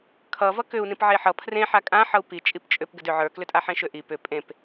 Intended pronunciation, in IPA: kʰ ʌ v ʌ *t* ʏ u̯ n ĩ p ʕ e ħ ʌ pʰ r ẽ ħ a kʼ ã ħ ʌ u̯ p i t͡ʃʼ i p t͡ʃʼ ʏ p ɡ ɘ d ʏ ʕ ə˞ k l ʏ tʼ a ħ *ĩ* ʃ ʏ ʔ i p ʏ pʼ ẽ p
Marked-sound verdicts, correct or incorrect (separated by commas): incorrect, incorrect